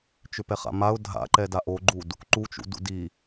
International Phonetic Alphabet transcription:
t͡ʃ ʏ p ɛ χ a̰ m a ʊ̯ dʱ a̰ ǃ ɛ d a ʔ o ɡ͡ǃ u d | ǃ u t͡ʃ ṵ d ṵ d i

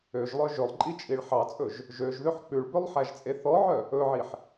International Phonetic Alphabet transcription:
ø ʒ lˠ œ ʒ ɵ lˠ ǃʼ i t͡ʃʼ i ɭ ħ ɑ t͡sʼ ɵ ʒ | ʒ ø ʒ ð ø ħ k͡p ʉ ɭ b ø lˠ ħ æ ʒ t͡sʼ e θ ɔ ʕ œ | ɵ ʕ i ħ

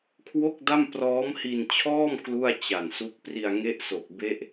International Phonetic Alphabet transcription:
kʰ w o˥˩ k̚ d a˥˩ m p r ɔː˦˥ m h i˧ n t͡ɕʰ ɔː˥˩ m k l u˥˩ a̯ t͡ɕ a˨˩ n s u˦˥ k̚ p r i˧ a̯ ŋ e˦˥ ʔ s o˨˩ k̚ b e˦˥ ʔ

